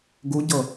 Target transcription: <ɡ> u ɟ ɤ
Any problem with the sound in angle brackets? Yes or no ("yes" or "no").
no